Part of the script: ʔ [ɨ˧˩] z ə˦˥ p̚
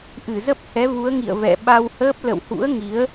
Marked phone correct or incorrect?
correct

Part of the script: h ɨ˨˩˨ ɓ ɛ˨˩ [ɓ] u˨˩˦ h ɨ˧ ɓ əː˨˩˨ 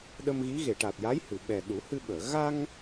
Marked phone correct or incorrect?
incorrect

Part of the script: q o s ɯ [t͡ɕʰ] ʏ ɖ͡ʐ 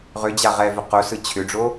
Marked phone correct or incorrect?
correct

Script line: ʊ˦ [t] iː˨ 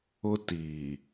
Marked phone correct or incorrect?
correct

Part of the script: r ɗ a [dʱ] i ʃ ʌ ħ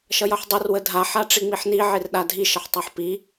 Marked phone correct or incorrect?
correct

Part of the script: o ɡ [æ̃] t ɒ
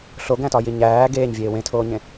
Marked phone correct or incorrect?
correct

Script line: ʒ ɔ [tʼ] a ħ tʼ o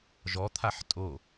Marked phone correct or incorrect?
incorrect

